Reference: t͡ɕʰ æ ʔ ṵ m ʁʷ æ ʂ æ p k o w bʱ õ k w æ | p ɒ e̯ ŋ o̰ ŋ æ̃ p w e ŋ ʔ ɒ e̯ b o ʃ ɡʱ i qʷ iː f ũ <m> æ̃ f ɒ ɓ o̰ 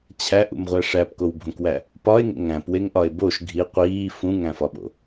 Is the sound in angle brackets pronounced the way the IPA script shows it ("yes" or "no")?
no